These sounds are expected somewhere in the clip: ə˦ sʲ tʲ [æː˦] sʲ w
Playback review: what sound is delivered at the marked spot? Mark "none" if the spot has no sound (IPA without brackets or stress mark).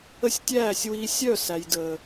æː˦˨